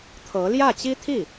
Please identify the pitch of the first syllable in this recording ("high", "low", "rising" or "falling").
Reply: rising